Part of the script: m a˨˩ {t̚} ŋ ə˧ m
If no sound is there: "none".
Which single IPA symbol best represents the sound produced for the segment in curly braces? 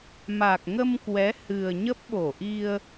k̚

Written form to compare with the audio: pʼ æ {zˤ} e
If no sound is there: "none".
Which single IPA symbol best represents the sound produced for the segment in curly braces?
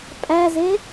z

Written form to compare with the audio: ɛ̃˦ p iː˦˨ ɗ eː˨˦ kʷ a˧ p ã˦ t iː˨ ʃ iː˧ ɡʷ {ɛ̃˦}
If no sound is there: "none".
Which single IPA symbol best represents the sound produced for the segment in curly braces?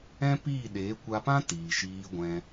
ɛ̃˧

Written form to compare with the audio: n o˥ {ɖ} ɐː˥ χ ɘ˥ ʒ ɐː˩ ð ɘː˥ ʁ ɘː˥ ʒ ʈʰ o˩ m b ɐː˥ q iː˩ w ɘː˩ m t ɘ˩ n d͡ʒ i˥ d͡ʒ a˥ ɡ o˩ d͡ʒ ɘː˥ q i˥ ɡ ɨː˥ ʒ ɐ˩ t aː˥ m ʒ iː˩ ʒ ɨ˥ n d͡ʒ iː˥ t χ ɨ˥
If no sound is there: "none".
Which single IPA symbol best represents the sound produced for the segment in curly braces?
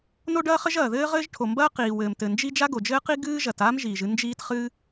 ɖ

